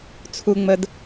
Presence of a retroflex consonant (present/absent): absent